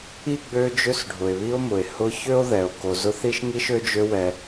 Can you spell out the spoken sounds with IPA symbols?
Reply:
i˥ɡ͡bø˦ d͡ʒø˦sɖʱʊ˩e̯βi˦o̯mʊ˩e̯ hʊ˦çø˥o̯ ðɛ˩o̯ ko˨zʊ˦θi˥ʃ ŋi˥ʃø˦d͡ʒø˦wɛ˨

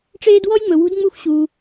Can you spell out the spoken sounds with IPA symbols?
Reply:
ʈ͡ʂeː˦dwɔ˥jŋ͡mɵ˨wṳ˦d ŋ͡mu˦xʷ ɕuː˨

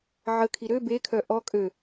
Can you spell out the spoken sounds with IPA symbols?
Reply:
ʕəkʰi ɾø bekʰœ ʔɔ kʼø

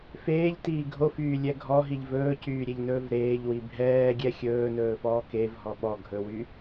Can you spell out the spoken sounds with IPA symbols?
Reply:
feːʎtiː ɡʱofyːlʲɛ ɡʱɔɦiʎ vɵːcyːɾʲeʎnɵːv ɾeːʎwi bʱɛːɡʲɛ xʲɵːnɵːfɔː kevɦɔ ɓɔ ɡʱɵwy

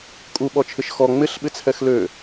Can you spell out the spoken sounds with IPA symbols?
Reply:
kʼuɓɔt͡ʃʰɪʃ xɔ ŋ͡mɪɬɓɪt͡sʰɛx lø

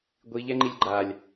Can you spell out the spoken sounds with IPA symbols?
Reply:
ɡʷi ʎɛŋ͡ǃilʲɡ͡ǃalʲ

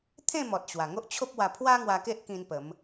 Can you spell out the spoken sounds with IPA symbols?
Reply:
t̪ʰẽ˥˧mɔ˨t̚ ɕwa˨˩ŋo˦ʔt͡ɕʰo˦p̚ wa˧pʰwa˦ ŋwa˧ke˦ʔkĩ˧n pə˨˦m

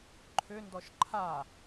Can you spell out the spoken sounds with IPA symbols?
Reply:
ǃʰʏndɔʃ ǃʰa

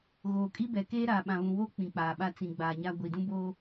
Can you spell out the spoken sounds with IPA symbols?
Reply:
ɣoː˨kʼi˦bɛ˨keː˦ ɾaː˨ɓã˨βũ˨woː˦ k͡pĩ˨k͡paː˨ɓa˦ t͡sĩ˨ɡ͡baː˨ɲa˦ ɡʷi˨dũ˦boː˦

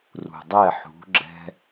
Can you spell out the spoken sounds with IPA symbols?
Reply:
rṳ˨ dˤɛ˦˨ħṳ˨˦ɡ͡ǁɛ̤˦

